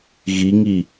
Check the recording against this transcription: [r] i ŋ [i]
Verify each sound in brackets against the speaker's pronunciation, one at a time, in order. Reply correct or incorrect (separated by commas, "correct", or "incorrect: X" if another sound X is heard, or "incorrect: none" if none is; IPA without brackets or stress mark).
incorrect: ɣ, correct